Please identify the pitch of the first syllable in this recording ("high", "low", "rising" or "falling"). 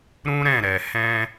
high